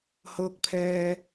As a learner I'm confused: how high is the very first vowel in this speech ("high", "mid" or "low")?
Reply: mid